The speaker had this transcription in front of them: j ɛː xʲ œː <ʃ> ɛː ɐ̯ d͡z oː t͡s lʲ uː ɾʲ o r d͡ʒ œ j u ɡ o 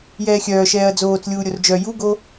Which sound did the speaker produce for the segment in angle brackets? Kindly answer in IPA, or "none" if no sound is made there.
ʃ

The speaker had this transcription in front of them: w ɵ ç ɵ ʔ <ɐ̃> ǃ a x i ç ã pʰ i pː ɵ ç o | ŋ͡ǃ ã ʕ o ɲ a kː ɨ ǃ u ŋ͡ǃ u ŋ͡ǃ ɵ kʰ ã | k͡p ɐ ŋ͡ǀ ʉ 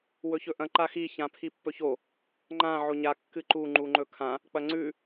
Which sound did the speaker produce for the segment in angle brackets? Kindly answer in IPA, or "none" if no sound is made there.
ɐ̃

